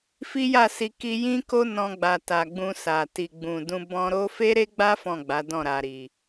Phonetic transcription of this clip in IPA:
fi˦ja˦˨si˧ ki˧jĩ˦ko˦ nɔ̃˧ɡ͡ba˨ta˨ ɡ͡bũ˧sa˨ ti˨ɡ͡bũ˨dũ˧ bɔ̃˧ɾo˦ fe˦ɾe˦ɡ͡ba˦ fɔ̃˦˨ɡ͡ba˨˦dɔ̃˦˨ ɾa˨ɾi˨

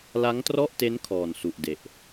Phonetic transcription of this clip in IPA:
la˦˥ŋtrɔ˥˩ʔte˦˥n kʰɔː˨˩nsu˨˩ʔde˨˩ʔ

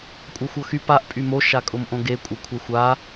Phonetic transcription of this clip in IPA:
kʷʼœxʷɤxy paʔ pʼymo ʃakʼʊmʔõɡe kʷʼɤkʷʰɛxʷa

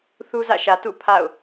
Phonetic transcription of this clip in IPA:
θu˦zä̰˦˨ʃä˨ tṵ˦˨ pʰa̰˦˨ʊ̯

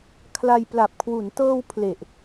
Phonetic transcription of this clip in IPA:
kʰla˧jpla˨˩p̚kʰwu˩˦n tɤː˧w pʰle˨˩ʔ

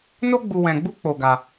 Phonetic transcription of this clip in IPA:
no˦ɡ͡bu˧ wɛ̃˧ɡ͡bu˦ k͡po˧ɡa˧

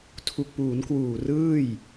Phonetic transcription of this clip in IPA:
tʰu˨˩k̚puː˩˦nkwuː˨˩ rɯː˥˩j

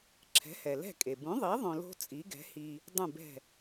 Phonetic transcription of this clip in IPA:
ǁʰɛ̤˩˥hɛ˩lɛ̤˥˩kʼe˩ bũ˩˥ðˤi˩˥ ðˤõ˧lo̤˥ t͡sʼi˩˥ɡɛ̤˩˥hi˧ | dˤũ˥˩bɛ̤˥˩

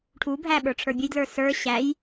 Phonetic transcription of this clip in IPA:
ʈʰubʱæ ɓə˞ʈ͡ʂʰə˞bʲəjdlə˞ sə˞ ɕæj

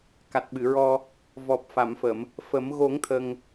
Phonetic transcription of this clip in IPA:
ka˨˩t̚ɓɨ˨˩˨ɹɔ˧ | vɔ˨˩p̚fa˨˩˨mfə˨˩˨m | fə˨˩˦m ɣo˨˩˦ŋ t̪ʰə˧ŋ

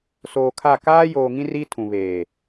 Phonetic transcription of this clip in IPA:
soː˨kʰa˦˨ kaː˦ joː˨ŋĩ˦ ri˦tʰũ˨ βeː˨

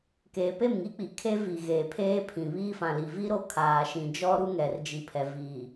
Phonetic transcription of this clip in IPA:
keː˨pe˦˨mŋi˦k͡pi˨ kʰe˦ vi˨ɣeː˨ pʰeː˦pʰĩ˨ βiː˦fã˨ li˨vi˦ ɾo˦kʰaː˨ʃĩ˨d͡ʒɔ˦ ɾu˦ŋɛ˨rd͡ʒi˨ pʰɛ˨ viː˨

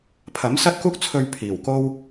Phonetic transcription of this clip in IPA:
pʰɐ˨˥msɐ˥t̚kuː˥k̚t͡sʰɵ˧ɥ pʰiː˨˩wko˥w

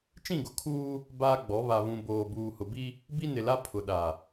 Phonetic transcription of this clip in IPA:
t͡ʃĩ˦˨ɡʊ˨kʰuː˦ | baː˦ɡ͡bɔ˨˦ βa˨βũ˨boː˨ buː˨hʊ˨bi˦ | bi˦nɪ˨la˦ pʰʊ˨ ɗa˨

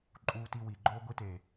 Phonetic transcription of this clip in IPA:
ǃʼuː˧ti˧wi˨ɡ͡ǃoː˦ ɡʷi˦teː˨

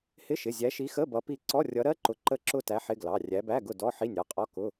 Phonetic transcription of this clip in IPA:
hɪ˧˥˧ʃɪ˩˧˩ zʲæ˨˦ʃi˨˦xə˧˥˧ bʌ˨˦pi˦˨ ǀɔ˧˥˧rʲʌ˨˦ɾɜ˧˥˧ ǃʊ˨˦ǃə˦˨ǁʊ˦˨tæ˨˦ ħɪ˧˥˧ɡlɑ˩˧˩ rʲæ˨˦bæ˧˥˧ɡʊ˦˨ dɔ˧˥˧ħi˧˥˧nʲɑ˩˧˩qʼɔ˧˥˧ kʊ˧˥˧

